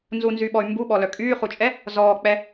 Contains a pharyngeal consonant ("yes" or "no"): no